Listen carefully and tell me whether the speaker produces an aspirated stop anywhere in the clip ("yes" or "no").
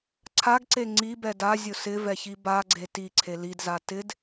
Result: yes